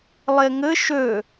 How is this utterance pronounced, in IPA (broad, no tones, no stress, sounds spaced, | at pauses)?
lˠ e ŋ ɘ ʃ ø